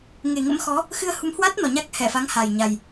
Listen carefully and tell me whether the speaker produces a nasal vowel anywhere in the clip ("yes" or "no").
no